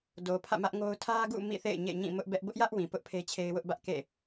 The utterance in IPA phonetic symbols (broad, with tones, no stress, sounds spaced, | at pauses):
d o˨ pʰ ä̰˦˨ m ä˦ ʔ ŋ o˦ ʊ̯ tʰ ä˦ ɡ ṵ˦˨ m ḭ˦˨ θ ḛ˦˨ ɪ̯ ɲ ḛ˦˨ ɲ ĩ˦˨ m ʊ˦ ʔ b ɛ˦ ʔ b ʊ˦ ʔ j ä˦ ʔ w ĩ˨ p ʊ˦ ʔ pʰ e˦ t͡ɕʰ e˦ ɪ̯ w ʊ˦ ʔ b ä˦ ʔ k ḛ˦˨